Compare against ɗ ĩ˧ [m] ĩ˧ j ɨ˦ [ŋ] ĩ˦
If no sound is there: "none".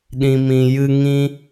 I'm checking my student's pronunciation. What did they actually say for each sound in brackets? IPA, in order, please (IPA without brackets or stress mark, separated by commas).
m, ŋ